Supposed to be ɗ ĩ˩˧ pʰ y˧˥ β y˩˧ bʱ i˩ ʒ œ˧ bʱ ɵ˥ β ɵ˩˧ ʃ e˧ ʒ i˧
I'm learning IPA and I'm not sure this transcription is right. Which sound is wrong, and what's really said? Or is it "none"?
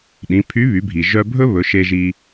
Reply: none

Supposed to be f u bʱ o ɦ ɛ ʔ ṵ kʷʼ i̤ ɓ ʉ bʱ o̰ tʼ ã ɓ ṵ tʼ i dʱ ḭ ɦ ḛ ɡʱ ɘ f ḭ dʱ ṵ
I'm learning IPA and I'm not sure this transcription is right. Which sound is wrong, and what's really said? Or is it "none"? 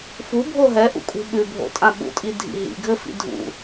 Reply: ḛ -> ḭ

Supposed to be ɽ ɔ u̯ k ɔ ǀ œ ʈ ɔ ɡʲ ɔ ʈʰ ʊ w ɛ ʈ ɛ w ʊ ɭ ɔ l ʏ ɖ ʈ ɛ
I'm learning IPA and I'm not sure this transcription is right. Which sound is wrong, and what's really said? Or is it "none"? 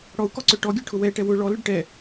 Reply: none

